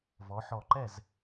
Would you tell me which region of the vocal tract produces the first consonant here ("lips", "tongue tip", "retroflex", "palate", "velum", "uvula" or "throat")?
lips